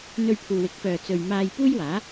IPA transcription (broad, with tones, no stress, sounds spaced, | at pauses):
n̪ ɵ˧ ɥ pʰ uː˨ w ɪ˨˥ k̚ p œː˨ t͡s ɵ˨ ɥ m aː˧ j p uː˥ j w aː˨˥